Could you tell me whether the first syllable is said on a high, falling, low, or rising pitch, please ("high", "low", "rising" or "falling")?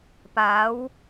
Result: rising